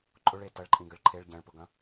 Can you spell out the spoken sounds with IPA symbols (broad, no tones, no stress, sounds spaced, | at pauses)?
ǃʼ ʊ ɭ e t ɐ ɭ ǃʼ ĩ ɡ ə ɭ ǃʰ e ɭ ɟ ɐ̃ ɭ p ʊ ɡ ɐ̃